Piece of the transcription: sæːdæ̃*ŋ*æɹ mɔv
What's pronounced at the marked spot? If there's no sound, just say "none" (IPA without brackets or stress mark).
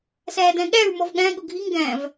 ɠ